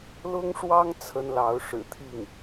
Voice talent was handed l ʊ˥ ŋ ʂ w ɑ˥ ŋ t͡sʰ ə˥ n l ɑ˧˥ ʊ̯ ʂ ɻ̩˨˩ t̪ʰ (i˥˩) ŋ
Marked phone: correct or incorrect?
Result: correct